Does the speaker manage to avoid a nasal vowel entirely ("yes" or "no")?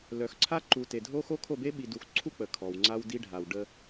yes